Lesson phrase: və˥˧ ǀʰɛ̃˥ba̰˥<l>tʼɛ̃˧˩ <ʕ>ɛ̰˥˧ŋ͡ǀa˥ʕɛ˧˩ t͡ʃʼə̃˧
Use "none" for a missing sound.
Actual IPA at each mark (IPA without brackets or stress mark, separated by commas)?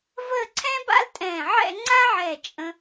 l, ʕ